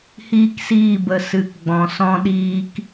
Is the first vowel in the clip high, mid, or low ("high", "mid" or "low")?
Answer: high